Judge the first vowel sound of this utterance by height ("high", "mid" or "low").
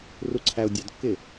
high